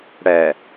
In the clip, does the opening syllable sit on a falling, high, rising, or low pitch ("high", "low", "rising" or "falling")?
low